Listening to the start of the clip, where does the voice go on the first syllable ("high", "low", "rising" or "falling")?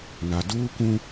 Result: low